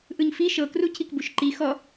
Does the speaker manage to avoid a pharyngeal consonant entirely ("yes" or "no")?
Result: yes